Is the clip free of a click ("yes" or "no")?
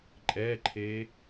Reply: no